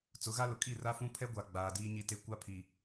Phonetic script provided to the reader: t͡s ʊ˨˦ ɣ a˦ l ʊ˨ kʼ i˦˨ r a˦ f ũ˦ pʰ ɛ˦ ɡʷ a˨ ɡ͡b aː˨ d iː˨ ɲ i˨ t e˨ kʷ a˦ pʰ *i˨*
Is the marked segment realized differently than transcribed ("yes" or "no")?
no